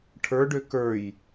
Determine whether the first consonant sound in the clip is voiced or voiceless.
voiceless